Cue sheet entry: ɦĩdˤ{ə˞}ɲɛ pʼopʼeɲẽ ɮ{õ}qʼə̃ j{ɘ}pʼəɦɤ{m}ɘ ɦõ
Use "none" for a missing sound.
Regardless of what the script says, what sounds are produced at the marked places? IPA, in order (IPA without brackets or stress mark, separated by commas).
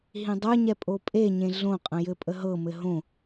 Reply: ə˞, õ, ɘ, m